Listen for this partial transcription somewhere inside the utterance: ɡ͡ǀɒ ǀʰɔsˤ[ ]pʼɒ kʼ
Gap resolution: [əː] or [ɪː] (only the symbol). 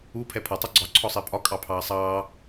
ɪː